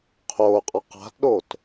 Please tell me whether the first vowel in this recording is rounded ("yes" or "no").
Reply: yes